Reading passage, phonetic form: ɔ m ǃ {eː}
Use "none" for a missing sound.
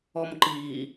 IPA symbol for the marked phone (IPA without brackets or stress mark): iː